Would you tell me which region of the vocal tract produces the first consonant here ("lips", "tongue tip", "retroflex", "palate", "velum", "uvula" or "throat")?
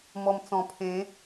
lips